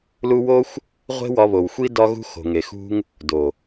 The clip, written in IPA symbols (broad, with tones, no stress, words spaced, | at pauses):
lu˧wo˦xʷ | ʁʷe̤˦wɒ˧βo˨w xʷi˦ dɒ˦ɣṳ˦ xo̤˨ŋe˨xṳ˦ŋ | do˨